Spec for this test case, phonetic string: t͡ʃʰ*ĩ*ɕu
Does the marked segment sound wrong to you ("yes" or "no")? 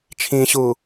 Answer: no